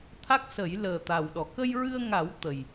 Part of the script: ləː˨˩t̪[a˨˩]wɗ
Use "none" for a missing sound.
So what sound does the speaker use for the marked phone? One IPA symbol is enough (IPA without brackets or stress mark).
a˨˩